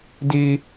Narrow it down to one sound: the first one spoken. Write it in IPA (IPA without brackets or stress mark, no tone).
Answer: d